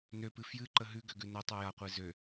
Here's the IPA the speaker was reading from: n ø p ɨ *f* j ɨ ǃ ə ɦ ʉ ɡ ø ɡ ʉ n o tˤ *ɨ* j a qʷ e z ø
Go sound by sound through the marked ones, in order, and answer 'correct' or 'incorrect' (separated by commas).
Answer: correct, incorrect